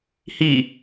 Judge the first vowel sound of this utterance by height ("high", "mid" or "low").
high